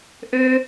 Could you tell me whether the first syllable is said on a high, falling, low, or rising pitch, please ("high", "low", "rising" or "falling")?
high